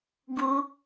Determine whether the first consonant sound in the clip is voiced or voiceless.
voiced